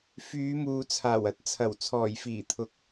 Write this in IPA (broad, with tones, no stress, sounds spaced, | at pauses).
f yː˨˧ m uː˨ t͡sʰ aː˨˩ w ɐ˧ t̚ t͡sʰ ɐ˨˩ w t͡sʰ ɔː˨˩ j f iː˨˩ t̪ʰ ʊ˨˥ k̚